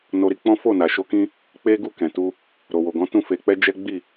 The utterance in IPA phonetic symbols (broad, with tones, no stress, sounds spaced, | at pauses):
n o˧ ɾ i˧ k͡p ɔ̃˦ f o˦˨ n a˨ ʃ o˧ k ĩ˦ | k͡p e˦ ɡ u˦˨ k ɛ̃˨ t u˧ | ɾ o˨ w o˨ ɡ ɔ̃˨˦ t ũ˦˨ f e˧ k͡p ɛ˦ d͡ʒ ɛ˦ ɡ͡b i˦˨